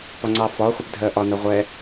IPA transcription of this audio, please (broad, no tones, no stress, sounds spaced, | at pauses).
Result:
p ɒ ŋ͡ǀ ɑ f ɒ χʷ ɪ p dʱ ɜ ʔ ɒ n ʌ ʁʷ ɛ